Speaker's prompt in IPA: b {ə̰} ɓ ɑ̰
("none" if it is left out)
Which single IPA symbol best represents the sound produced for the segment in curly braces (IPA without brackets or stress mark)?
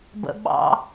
ə̰